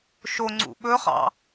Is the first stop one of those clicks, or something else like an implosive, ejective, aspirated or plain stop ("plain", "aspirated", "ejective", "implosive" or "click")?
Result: click